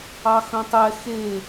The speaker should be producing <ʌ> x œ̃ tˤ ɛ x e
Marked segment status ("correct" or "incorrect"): incorrect